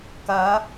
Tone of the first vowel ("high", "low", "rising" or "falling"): rising